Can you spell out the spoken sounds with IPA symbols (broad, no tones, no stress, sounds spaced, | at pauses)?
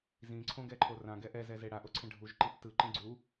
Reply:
z ĩ ǀʰ õ ɡ ɛ ǃʰ o r ã ɡ ɛ ʔ ɛ z ɛ z e ɽ a ʔ o ǀʰ ɛ̃ ɖʱ u ʒ ǃ i p t ɯ ǃ ĩ ɡ͡ǀ u